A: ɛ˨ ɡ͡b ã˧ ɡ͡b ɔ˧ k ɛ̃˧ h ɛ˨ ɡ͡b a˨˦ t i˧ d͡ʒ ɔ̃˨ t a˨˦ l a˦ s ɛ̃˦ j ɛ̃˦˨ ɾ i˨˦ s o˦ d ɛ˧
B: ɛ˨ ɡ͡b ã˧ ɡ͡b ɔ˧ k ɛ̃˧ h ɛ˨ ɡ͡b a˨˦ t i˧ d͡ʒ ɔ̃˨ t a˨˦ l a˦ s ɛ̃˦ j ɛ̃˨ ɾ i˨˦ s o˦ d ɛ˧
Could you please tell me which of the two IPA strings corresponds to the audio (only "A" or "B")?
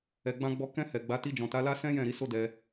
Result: A